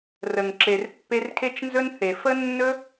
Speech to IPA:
rə˨ŋǁe˨rpːe˧r kʰe˦t͡ʃnzɵ˦n θe˨ fə˦nːɵ˦

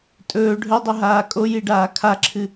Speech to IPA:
tʼɵː ɖʱɵdˤɵɦaː kʼojiɖaː kʰaǁʰɨ

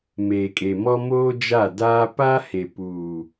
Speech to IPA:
meː˨kʼe˨mɔ˦ moː˦d͡ʒa˦˨daː˦ pa˦he˨ puː˨

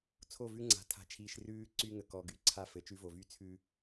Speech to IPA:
t͡sʰo˦˨vʉ˦ŋ͡ǀa̤˨ tʰa̤˨t͡ʃʰiː˨ʃrʉː˦ ǀy˦ ŋə˨ kɔ˨ɡy˨ǀʰa˦ fɘ˨ t͡ʃʉ˦vo˨vy˦ t͡sʰʉ˨

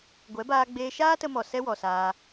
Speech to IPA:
ɡʷɛ˨˦baː˧ ɡ͡beː˧ʃaː˦ tə˧mɔ˨ sɛ˦wɔ˨saː˧

